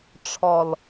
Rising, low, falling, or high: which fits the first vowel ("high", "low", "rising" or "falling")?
low